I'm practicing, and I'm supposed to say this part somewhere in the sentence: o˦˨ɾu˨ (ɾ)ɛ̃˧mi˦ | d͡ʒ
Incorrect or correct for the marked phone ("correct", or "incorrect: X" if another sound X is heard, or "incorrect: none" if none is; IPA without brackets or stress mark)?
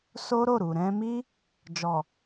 correct